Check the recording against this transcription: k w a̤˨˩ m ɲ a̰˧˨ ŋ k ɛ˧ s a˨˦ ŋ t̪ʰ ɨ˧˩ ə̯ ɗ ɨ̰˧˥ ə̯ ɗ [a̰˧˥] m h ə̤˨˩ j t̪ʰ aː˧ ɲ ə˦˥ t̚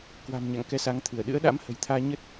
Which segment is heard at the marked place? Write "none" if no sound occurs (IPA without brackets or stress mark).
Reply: a̰˧˥